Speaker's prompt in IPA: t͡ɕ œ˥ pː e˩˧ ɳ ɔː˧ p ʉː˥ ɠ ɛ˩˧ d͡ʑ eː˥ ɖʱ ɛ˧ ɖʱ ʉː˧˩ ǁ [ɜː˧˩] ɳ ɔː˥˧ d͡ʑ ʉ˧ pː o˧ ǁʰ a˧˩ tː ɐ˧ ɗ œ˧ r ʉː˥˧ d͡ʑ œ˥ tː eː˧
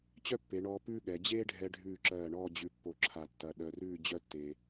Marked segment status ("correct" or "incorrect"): correct